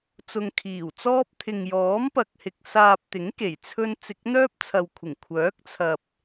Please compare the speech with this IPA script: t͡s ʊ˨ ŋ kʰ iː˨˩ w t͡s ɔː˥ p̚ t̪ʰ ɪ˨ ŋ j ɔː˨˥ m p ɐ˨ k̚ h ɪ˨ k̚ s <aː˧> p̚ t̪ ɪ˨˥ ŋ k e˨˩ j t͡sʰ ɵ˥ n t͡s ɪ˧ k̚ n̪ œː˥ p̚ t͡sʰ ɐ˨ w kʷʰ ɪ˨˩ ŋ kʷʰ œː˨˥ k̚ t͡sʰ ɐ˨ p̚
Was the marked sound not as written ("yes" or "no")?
no